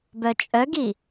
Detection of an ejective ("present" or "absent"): present